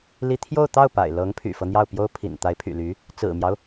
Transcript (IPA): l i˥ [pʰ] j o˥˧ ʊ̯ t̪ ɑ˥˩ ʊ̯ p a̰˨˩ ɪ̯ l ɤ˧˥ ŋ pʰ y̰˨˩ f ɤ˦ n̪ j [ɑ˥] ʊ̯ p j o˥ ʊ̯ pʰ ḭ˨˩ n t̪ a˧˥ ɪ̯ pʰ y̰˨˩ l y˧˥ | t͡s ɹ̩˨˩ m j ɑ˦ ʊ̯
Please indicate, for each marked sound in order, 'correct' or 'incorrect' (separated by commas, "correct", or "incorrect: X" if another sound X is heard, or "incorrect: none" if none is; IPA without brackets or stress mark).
incorrect: t̪ʰ, incorrect: ɑ˥˩